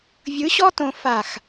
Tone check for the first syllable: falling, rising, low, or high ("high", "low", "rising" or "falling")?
rising